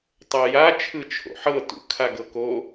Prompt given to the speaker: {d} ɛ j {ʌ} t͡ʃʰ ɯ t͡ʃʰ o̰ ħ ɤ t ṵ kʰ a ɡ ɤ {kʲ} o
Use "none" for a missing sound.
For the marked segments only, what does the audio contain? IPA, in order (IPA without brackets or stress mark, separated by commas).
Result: tˤ, a, k